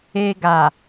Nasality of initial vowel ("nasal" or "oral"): oral